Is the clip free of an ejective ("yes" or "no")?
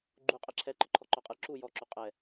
no